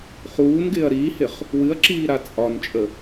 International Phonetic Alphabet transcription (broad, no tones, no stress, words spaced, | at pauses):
χuːnɡɪːɐ̯ ɾiːhɪχ | wɨɐ̯ǁiːɾa t͡sʼɒnt͡ʃʼə